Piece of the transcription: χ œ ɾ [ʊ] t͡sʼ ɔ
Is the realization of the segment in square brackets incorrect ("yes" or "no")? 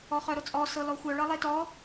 no